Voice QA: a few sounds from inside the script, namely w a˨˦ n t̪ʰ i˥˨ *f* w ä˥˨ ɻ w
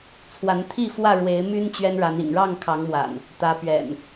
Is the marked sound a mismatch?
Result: no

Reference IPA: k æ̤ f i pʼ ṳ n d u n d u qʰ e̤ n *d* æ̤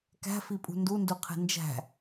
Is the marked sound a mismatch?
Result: yes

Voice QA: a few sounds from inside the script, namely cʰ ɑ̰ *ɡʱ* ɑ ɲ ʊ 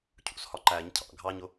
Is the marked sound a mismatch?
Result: no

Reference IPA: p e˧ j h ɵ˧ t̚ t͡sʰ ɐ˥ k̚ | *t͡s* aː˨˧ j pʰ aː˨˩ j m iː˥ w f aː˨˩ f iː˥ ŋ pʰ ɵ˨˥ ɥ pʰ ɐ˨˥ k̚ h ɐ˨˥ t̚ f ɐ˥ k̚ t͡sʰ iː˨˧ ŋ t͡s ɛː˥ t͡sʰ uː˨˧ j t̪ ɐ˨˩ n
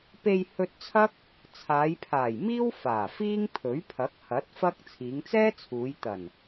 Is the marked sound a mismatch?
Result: yes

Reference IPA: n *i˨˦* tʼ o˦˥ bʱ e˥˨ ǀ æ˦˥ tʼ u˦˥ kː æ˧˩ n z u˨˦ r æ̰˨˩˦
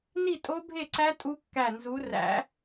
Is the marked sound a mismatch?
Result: yes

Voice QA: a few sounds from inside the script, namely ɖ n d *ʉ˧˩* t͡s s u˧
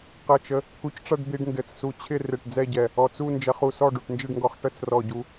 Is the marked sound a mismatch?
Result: yes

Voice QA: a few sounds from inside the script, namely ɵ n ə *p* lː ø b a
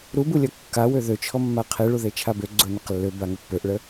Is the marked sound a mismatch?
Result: yes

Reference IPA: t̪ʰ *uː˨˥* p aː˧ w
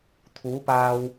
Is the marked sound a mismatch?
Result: no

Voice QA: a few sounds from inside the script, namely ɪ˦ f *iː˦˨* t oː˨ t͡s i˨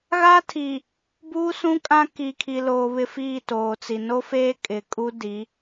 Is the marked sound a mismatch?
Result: no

